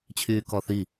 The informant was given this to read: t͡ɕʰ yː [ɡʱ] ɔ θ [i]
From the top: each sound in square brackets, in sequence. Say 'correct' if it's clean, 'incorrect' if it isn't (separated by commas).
incorrect, correct